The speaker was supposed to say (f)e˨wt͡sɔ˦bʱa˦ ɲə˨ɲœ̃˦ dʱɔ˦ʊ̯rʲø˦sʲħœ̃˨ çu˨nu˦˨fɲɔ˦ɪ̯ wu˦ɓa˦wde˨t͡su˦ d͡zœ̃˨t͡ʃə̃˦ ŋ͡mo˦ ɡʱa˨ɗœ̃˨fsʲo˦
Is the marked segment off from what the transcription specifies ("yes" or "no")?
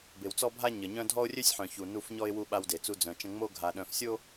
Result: yes